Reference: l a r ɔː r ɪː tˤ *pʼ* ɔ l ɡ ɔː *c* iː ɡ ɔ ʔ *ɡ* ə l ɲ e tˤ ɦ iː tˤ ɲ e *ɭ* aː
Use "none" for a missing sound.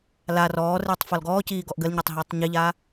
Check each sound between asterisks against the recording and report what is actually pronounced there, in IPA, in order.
f, c, ɡ, ʎ

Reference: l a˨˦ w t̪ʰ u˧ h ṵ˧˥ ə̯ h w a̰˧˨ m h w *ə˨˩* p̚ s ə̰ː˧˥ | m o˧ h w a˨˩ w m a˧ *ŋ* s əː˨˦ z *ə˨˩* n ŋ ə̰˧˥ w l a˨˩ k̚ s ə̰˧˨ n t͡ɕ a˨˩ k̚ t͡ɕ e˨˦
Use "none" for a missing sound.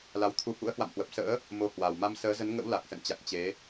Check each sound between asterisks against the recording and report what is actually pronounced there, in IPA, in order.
ə˨˩, m, ə˨˦

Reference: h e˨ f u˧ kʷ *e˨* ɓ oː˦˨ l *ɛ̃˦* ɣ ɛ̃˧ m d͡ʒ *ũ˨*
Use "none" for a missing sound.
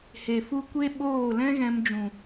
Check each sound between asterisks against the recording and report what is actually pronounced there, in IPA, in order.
e˦, ɛ̃˦, ũ˨

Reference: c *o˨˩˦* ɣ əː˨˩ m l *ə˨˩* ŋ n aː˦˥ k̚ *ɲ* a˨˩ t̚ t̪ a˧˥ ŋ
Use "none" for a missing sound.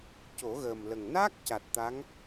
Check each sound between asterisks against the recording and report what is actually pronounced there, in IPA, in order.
o˨˩˦, ə˨˩, c

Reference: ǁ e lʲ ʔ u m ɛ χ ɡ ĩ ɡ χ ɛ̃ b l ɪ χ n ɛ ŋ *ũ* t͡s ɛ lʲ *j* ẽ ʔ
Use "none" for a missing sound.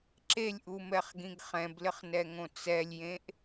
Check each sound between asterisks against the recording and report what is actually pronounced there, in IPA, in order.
õ, j

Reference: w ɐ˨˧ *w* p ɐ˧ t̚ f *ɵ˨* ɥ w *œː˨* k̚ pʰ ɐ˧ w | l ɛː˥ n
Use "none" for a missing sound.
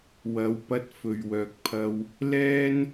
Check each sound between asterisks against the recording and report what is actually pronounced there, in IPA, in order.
w, ɵ˨, œː˨

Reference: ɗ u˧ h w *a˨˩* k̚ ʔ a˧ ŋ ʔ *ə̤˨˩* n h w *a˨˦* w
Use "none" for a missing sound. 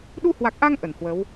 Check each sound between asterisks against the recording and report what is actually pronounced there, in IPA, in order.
a˨˩, ə˧˩, ə˨˦

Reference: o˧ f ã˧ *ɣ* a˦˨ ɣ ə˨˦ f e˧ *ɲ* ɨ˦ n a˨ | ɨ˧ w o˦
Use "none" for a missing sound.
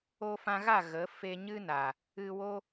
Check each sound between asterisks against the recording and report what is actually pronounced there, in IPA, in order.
ɣ, ɲ

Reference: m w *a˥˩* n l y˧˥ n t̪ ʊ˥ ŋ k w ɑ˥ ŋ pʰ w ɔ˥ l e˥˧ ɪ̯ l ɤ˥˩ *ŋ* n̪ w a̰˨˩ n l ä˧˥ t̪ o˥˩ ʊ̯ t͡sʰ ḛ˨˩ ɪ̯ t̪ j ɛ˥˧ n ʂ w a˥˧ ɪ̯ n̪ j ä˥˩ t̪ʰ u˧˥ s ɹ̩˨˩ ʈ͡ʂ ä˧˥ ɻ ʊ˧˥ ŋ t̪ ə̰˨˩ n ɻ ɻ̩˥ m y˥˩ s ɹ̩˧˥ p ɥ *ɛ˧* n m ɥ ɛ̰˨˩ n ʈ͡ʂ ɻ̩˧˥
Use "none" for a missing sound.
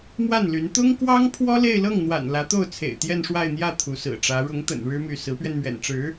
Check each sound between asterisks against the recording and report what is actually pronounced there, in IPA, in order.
a˥˩, ŋ, ɛ˧

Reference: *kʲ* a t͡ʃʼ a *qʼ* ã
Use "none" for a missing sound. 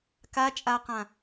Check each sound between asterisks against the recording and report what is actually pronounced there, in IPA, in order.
k, q

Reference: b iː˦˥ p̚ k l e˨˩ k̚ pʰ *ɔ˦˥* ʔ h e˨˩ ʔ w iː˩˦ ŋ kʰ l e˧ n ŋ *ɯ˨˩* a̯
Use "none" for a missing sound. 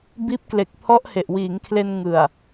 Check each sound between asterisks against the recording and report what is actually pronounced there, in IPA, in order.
ɔ˦˥, ɯ˨˩

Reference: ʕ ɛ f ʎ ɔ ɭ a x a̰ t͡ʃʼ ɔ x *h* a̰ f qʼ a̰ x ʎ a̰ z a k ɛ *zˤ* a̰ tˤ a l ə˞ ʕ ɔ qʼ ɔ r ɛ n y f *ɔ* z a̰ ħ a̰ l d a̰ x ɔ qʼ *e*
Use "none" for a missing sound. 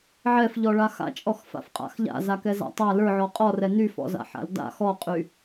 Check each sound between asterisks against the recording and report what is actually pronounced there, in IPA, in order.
f, z, ɔ̰, y

